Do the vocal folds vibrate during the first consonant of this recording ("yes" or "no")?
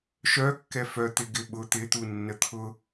no